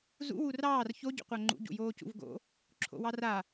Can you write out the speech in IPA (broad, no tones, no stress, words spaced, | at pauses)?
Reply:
zṵ wurɑːr ço ɟṵqʷaŋ͡ǃṵ ɟṵjoːcṵvɡo̰ | ǁʰo̰wɑra